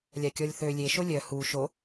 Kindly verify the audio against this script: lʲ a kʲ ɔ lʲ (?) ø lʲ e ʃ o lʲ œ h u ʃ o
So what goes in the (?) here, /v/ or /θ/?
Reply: θ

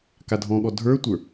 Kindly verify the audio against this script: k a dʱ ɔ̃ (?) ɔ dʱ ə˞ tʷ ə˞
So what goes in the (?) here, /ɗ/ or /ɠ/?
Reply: ɠ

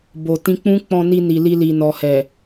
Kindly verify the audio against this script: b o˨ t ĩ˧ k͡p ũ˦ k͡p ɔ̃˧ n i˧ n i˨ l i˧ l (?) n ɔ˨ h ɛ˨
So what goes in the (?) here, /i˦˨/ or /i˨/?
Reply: i˨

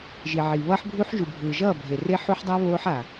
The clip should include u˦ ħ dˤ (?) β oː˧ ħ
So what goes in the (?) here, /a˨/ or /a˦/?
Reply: a˦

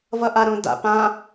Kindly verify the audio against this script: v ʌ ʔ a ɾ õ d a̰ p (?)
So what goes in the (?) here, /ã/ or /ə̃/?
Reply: ã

